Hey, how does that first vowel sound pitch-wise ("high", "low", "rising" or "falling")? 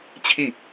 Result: falling